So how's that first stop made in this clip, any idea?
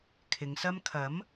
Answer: aspirated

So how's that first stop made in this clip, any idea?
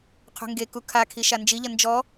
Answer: aspirated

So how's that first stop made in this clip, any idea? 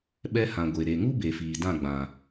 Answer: implosive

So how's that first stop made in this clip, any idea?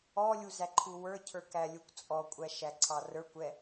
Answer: click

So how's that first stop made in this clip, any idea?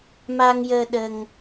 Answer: implosive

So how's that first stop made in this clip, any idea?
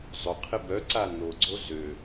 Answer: aspirated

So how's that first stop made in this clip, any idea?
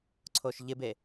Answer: click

